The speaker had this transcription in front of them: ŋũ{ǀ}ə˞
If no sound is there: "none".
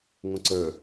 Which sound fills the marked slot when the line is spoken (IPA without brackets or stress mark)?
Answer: ǀ